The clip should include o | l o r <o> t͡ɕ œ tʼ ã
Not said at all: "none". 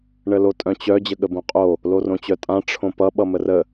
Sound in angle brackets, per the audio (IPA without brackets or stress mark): õ